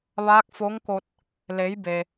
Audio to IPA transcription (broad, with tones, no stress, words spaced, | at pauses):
ʋaː˧˥k̚fo˧˥ŋko˧t̚ | le˩˧jbe˩